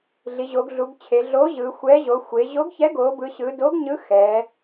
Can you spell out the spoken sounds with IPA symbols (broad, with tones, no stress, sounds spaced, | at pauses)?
ɮ i˩˧ ʑ o˩˧ ɡ ɮ u˩˧ ɡ t͡ɕʰ e˩˧ ɮ o˨˥ ʑ ɯ˩˧ xʷ ɛ˨˥ ʑ o˩˧ xʷ e˩˧ ʑ o˨˥ ɡ ç ɛ˨˥ ɡ o˩˧ b ɯ˩˧ ɕ ɯ˩˧ d o˨˥ ɡ ɲ ɯ˨˥ x ɛ˩˧